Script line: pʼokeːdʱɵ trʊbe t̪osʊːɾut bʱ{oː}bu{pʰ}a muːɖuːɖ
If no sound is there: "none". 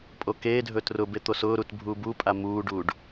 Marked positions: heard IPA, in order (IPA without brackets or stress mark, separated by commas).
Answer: uː, pʼ